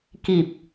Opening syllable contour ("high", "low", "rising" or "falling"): low